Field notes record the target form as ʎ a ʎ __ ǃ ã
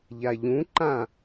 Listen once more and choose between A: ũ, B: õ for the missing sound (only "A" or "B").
A